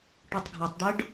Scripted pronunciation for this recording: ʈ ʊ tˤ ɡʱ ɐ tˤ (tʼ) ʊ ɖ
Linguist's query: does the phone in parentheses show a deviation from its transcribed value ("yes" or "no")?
yes